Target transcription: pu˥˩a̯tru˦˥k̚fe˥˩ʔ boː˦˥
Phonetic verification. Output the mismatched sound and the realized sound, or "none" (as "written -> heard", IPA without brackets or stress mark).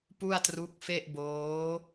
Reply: none